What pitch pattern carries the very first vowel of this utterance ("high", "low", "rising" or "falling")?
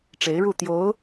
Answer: rising